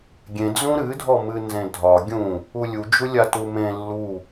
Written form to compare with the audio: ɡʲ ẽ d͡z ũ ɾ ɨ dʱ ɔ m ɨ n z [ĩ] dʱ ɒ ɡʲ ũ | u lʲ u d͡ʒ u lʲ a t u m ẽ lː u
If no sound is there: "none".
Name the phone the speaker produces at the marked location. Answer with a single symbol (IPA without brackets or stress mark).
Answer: ẽ